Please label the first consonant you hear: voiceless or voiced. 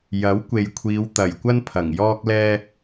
voiced